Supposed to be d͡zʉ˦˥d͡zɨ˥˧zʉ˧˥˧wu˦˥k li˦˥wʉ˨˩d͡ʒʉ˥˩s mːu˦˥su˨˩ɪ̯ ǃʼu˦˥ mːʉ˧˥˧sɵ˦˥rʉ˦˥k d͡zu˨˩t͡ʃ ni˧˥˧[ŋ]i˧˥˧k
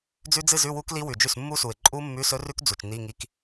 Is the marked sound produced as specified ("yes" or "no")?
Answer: yes